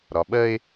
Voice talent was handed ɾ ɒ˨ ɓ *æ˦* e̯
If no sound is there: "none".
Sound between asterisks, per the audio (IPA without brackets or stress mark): ɜ˦